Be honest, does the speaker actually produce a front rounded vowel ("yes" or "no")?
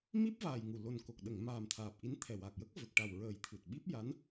no